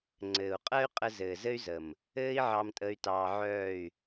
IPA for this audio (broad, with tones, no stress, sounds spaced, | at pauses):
ŋ͡ǀ ɘː˨ u̯ qʼ ɜ˦ y̯ qʼ ə˧ z ɘː˨ z ɘ˦ y̯ z ə˨ m | ɘː˦ i̯ ʕ ɑ˧ m tʼ ə˧ y̯ t ɑː˧ ʕ œː˦˨ y̯